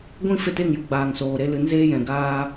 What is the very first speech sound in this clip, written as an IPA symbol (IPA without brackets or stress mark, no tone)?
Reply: ɡʷ